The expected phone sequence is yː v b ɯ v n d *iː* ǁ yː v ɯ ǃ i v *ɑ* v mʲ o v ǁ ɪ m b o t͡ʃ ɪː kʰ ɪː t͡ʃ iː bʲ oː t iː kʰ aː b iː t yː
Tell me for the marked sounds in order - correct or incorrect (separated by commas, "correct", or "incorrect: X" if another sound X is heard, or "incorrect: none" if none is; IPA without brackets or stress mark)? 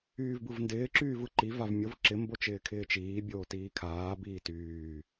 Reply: incorrect: ɪː, incorrect: a